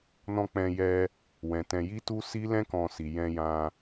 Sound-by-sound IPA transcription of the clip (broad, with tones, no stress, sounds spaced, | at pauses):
n ɔ̃˧ k͡p ɛ̃˧ j ɛ˧ | w ɛ̃˨ t ɛ̃˧ j i˦ t u˦ s i˦ l ɛ̃˦ k ɔ̃˧ s i˨ j ɛ̃˧ j ã˧